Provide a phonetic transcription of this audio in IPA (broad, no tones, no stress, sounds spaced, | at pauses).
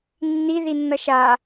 nː i ð i nː ʌ ʃ a